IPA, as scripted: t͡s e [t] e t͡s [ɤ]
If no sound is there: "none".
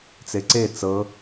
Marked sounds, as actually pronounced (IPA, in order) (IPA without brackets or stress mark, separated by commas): ǀ, ɤ